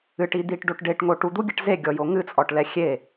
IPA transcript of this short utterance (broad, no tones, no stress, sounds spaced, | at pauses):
ɨ ʈ i d̪ i ʈ ɖ o ʈ ɖ e ʈ ŋ o ʈ u d̪ u ɡʲ ɛ ʈ z e ɡʲ ɔ j o ŋ ɨ t͡sʼ ɔ ʈ l ɛ xʲ e